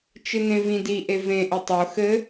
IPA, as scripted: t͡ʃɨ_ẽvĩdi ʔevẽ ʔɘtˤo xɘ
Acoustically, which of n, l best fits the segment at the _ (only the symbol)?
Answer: n